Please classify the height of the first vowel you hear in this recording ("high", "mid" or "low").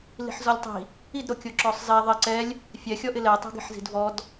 high